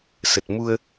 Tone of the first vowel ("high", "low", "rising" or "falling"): low